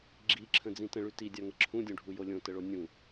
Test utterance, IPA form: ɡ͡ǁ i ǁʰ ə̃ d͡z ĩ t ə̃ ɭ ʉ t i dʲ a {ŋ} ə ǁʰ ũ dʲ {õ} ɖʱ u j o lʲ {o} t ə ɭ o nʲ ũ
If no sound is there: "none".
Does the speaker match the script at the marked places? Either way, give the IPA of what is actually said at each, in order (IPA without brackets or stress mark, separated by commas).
ŋ, õ, õ